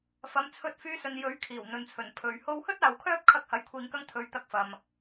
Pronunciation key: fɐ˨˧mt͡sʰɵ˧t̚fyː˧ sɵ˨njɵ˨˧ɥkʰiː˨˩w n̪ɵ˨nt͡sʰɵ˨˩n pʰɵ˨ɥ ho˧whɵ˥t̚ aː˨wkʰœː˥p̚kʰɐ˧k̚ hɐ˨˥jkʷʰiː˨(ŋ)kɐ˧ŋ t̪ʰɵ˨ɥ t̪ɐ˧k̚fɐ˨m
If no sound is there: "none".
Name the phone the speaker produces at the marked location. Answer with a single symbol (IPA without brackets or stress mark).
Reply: ŋ